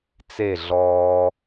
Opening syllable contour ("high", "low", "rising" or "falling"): falling